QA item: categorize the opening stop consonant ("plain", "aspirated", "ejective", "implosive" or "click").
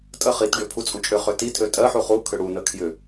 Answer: ejective